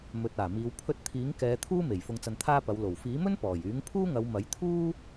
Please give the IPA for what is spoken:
m ɵ˨ t̚ aː˨˩ m iː˨˧ w pʰ ɵ˧ t̚ t̪ʰ iː˨˥ ŋ k ɛː˨˧ t̪ʰ uː˥ m e˨˩ j f ʊ˧ ŋ t͡s ɐ˧ n t̪ʰ aː˥ p ɐ˨˧ w l o˨˩ w f iː˨˥ m ɵ˥ n p ɔː˨˩ j yː˨˥ ŋ pʰ uː˥ ŋ ɐ˨˧ w m ɐ˨˥ j t̪ʰ uː˥

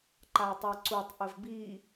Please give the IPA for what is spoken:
ǃ a j tˤ ɜ ǀ u tˤ ʔ ə v b i

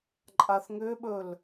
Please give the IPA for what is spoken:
ǃʼ a θ ŋ ʏ ɓ ɵ l

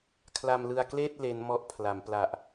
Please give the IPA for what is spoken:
kʰ l a˧ m l ɯ˧ a̯ k l eː˥˩ t̚ l e˦˥ n m ɔ˦˥ ʔ pʰ l a˩˦ m p l a˨˩ ʔ

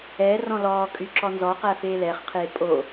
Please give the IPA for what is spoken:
ɛ r ɔ̃ l ɔː kʼ y ǁ ɔ n z ɔ q æ f eː l ɛ χ qʰ eː pʼ o

